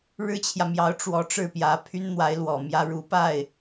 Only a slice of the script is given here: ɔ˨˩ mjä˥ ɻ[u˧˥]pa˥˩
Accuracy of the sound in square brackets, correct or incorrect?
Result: correct